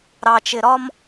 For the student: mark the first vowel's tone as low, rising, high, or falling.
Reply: low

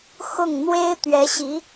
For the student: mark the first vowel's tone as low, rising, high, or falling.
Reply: falling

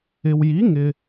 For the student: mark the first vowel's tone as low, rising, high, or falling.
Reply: low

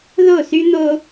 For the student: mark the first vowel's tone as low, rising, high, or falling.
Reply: falling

